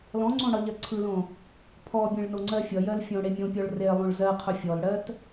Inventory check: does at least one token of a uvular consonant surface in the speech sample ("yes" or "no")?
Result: yes